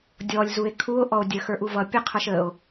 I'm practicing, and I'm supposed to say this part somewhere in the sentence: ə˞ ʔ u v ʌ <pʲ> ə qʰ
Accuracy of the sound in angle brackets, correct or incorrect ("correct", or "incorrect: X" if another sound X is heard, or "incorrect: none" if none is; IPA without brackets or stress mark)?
correct